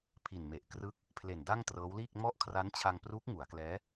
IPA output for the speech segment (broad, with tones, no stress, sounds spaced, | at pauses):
pʰ i˨˩ n m e˨˩ ʔ k r ɯ˦˥ k̚ | pʰ l e˨˩ n d a˥˩ ŋ t r ɤː˦˥ w l iː˥˩ k̚ m ɔ˦˥ ʔ kʰ r a˦˥ n t͡ɕʰ a˧ ŋ p r uː˦˥ k̚ ŋ u˩˦ a̯ k l ɛː˦˥